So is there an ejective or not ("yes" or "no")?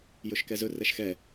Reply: no